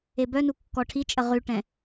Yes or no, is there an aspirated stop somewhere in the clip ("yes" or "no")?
yes